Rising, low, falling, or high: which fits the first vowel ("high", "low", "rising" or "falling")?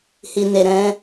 low